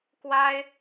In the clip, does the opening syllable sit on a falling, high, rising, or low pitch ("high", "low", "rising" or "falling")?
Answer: high